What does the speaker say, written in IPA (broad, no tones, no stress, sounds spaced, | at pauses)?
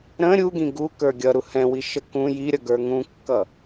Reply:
ɾ ə̃ ɾʲ u ɡ ĩ ɡ u k ə˞ ɡʲ ʌ ɾ u h ɛ̃ w i ʃ ə k ũ j i ɾʲ ʌ ɡ ə˞ ŋ ũ kː ʌ